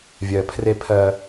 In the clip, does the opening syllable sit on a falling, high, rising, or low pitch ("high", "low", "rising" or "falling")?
low